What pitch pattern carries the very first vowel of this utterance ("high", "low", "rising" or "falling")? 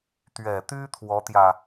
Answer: low